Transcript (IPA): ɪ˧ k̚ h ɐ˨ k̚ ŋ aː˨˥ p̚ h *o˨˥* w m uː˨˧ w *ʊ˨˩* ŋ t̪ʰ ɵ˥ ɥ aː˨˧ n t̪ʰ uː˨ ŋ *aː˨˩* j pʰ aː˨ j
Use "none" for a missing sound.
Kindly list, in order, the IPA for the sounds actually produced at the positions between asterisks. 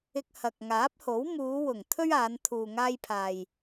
o˨˥, ʊ˨˩, aː˧

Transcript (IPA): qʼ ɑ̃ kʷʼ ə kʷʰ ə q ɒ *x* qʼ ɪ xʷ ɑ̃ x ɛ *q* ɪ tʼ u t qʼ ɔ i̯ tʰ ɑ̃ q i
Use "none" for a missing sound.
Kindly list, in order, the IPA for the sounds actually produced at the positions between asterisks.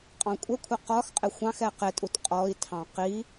x, q

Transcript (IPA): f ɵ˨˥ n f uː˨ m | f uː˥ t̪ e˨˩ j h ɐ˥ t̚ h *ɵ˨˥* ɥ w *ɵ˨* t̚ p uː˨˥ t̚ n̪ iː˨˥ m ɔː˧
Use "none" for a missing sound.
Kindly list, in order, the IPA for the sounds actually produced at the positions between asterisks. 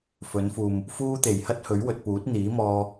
ɵ˨˥, ɵ˨

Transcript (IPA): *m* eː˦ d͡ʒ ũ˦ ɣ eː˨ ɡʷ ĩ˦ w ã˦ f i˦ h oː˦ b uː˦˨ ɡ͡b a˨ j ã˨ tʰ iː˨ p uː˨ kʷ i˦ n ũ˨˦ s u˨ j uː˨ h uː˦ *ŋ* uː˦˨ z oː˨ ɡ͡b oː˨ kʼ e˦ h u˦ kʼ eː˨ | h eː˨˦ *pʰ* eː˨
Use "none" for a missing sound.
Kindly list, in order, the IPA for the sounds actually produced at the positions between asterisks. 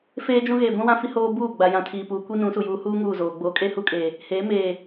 f, ŋ, m

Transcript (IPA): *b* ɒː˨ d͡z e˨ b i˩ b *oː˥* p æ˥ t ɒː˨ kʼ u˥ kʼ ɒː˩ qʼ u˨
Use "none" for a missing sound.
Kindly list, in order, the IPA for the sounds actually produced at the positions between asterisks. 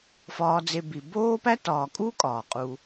f, oː˥

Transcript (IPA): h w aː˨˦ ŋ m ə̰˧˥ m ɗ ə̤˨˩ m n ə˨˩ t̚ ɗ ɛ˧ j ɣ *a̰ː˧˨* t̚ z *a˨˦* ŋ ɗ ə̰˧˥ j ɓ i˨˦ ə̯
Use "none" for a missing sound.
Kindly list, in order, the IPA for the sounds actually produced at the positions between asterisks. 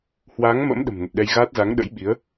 aː˦˥, a˨˦

